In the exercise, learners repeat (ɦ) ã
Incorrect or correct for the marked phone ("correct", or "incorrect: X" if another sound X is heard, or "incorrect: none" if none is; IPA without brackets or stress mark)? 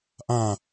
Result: incorrect: ʔ